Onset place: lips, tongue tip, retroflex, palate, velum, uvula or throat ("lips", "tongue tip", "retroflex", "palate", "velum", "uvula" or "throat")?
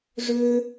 retroflex